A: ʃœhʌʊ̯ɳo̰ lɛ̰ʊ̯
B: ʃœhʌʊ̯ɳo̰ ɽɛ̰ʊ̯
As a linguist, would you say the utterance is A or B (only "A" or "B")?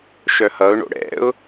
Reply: B